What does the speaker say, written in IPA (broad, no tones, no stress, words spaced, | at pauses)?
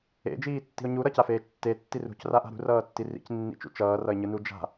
ḛd͡ʒiː tːi̤ʊ̯ɲuɾʌ cafeːt͡ʃtːe tːirṳcraʔa̤ ɾṳrʌːtːi rḭcnːḭt͡ʃṵ t͡ʃʌːrʌɪ̯ɲɯ nud͡ʒa̤